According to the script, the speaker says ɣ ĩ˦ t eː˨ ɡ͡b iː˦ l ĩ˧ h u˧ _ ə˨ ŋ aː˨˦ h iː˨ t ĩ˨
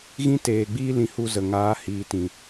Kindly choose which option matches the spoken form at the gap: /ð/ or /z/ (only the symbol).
z